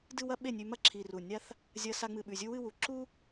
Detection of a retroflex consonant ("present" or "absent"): absent